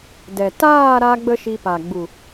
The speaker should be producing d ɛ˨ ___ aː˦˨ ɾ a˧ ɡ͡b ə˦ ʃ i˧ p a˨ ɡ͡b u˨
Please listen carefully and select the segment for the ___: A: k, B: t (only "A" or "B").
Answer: B